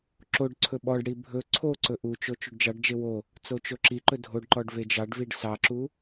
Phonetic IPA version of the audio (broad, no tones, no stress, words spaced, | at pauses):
ǁoɖ ǀʰɵɓɔɖɽi bʱɵ ǀʰoǀɵ ʔut͡ʃo t͡ʃuɖd͡ʒɑɖd͡ʒe wo | t͡sot͡ʃoǁiǃɵ dʱoɖǃɔɖ ved͡ʒɑɖviɖ sɑǁu